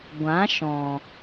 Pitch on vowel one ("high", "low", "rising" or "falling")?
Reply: rising